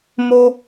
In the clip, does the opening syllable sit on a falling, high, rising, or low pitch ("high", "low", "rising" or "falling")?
high